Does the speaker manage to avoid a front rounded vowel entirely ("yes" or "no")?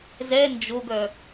no